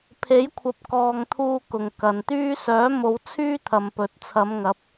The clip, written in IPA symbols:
pʰ e˨˥ j kʷʰ ɐ˨˥ p̚ k ɔː˨ ŋ t̪ʰ uː˧ k ʊ˨ ŋ k ɐ˨ n t̪ yː˥ s œː˨˥ m o˨˧ w t͡sʰ yː˥ t̪ʰ ɐ˨ m p ɵ˨ t̚ t͡sʰ ɐ˨˧ m ŋ ɐ˨˥ p̚

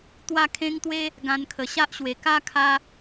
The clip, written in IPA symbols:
t̪ w a˥˧ kʰ ẽ˦ ŋ t̪ w e˦ | ɡ ã˧ n kʰ ə˨˩ ɕ a˦ ʔ ɕ w e˨˩ k a˦ kʰ a˧

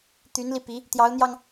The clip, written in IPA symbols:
t̪ y˧˥ n l i˧ p i˧˥ | t̪ j ɑ˧˥ ʊ̯ n̪ j ɑ˧ ŋ

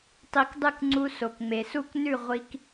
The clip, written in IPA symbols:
tˤ i˧ k dˤ ɨ˥˩ k ŋ͡ǀ u˧ s o˩ k ŋ͡m e˩ s u˥˩ k n ʉ˥˩ ʁʷ i˧ k

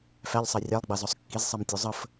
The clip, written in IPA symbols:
f æ ʎ sˤ ɑ rʲ ɑ lˠ ɡ͡b ɑ z ɔ sˤ kː i z sˤ ɑ m tʲ u zˤ ə f

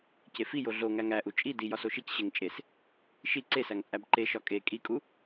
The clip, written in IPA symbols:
c e f i j o ɮ o ŋ æ ŋ æ ʔ u t͡ʃʼ i d i j ɒ s o ʃ i c ɕ e ŋ t͡ʃʼ e s | ʃ i ǀ e s æ ŋ t͡sʼ æ b ǃ e ʃ ɒ kʼ e kʼ i kʼ u

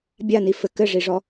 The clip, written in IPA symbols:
bʲ a n i f ɘ k ɘ ʐ i ʐ ɔ

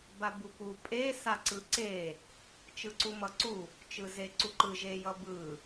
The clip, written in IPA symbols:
b a b u p u pʼ e s a ǀ ɯ ǀ e | t͡ʃ ɯ ǀ u m ʌ ǀ u | t͡ʃ ɯ z e ǀ u ǃ ɯ ʒ e j ʌ b ɯ

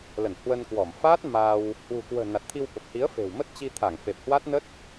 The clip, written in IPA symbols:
l ə˧˩ n h w ə˧ n k w ɔ˧˩ m f a˦˥ t̚ m a˧ w | h w ṳ˨˩ k w ə̤ː˨˩ n a˨˩ t̚ t̪ʰ i˧ w ɓ ə˨˩ p̚ h i˨˦ ə̯ f e̤˨˩ w m ə˦˥ t̚ t͡ɕ i˧ t̪ʰ a˧˩ ŋ f e˨˩ p̚ h w a˦˥ t̚ n ə˦˥ t̚

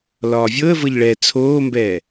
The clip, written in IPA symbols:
l ɒː vʲ ɤ ə̯ v ɤ ʎ ɭ ɛ t͡sʰ oː m b ɛː

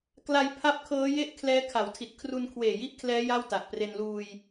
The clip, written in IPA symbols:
k l a˧ j pʰ a˦˥ p̚ kʰ ɤː˦˥ j e˥˩ ʔ kʰ l ɛː˦˥ kʰ a˩˦ w tʰ i˨˩ t̚ kʰ r u˧ n kʰ w eː˨˩ j i˥˩ ʔ kʰ l ɛː˦˥ j a˥˩ w t a˨˩ ʔ p r e˧ n l uː˧ j

